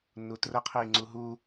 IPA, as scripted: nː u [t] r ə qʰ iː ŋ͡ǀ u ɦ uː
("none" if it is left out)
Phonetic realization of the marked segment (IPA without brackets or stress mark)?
t